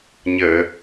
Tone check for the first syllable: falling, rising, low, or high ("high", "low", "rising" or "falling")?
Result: low